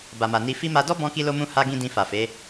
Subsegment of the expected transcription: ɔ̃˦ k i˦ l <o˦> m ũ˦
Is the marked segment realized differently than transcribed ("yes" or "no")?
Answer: no